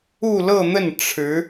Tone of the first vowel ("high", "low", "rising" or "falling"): falling